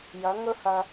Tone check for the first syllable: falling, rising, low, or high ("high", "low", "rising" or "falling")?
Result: rising